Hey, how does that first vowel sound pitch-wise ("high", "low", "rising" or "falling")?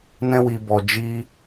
high